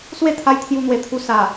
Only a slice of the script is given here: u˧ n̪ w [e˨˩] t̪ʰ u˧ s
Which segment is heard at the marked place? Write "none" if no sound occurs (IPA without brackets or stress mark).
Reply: e˨˩